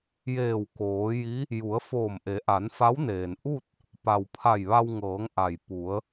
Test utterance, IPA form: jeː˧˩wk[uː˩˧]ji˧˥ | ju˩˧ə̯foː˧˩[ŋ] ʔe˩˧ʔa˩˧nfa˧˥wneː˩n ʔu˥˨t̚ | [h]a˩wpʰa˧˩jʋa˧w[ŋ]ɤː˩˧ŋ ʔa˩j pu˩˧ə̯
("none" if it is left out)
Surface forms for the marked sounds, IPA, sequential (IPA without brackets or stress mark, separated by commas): oː˩˧, m, p, ŋ